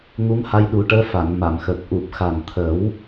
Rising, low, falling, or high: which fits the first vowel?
rising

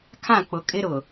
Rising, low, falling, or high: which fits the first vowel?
falling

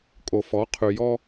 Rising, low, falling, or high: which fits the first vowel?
low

